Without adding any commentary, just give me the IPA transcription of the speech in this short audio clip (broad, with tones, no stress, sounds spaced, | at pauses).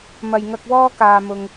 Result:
m ɐ˨ j ŋ ɐ˧ k̚ w ɔː˥ k aː˧ m ʊ˧ ŋ